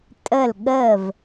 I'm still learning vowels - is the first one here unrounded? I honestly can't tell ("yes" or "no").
yes